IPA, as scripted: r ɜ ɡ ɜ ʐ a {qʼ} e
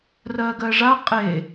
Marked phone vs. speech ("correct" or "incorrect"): correct